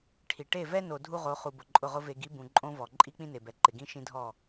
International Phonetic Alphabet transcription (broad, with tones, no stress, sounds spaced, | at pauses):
ʈʰ i˨ ʈ e˦˨ v ɛ˦ n o˨ dʱ u˦ ʁ o˨˦ χ u˨ b ʊ˨ ǃʼ ʊ˦˨ ʁ ʊ˦ v e˨ ɡ i˨˦ b ũ˨ ǃʼ õ˦ v ɔ˨ ǃʼ i˦ k͡p ĩ˦ n e˨ b ɛ˨ ǃ ɪ˨ ɡ ĩ˦ ʃ ĩ˦ dʱ ɔ˦˨